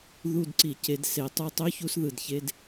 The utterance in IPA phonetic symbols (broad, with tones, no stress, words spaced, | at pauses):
ðu˦˨dǀi˧˩˧ ce˨˦dse˨˦tˤu˦˨tˤø˥ çu˥sðɯ˧˩˧dçe˧˥˧d